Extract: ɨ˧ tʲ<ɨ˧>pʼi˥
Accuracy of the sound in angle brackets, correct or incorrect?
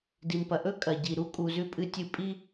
correct